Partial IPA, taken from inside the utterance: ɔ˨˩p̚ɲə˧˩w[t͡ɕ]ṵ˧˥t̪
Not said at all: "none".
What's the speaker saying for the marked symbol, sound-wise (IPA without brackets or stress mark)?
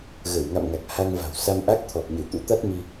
t̪